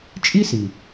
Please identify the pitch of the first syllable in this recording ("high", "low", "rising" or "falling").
high